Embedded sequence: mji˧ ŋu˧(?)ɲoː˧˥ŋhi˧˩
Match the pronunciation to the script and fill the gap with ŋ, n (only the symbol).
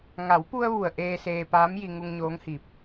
ŋ